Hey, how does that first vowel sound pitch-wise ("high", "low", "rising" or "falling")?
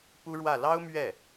high